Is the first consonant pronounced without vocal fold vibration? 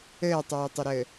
yes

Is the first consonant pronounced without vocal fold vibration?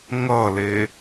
no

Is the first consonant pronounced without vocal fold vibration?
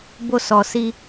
no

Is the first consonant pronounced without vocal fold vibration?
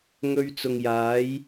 no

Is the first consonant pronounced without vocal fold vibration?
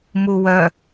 no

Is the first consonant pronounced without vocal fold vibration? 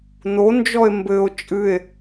no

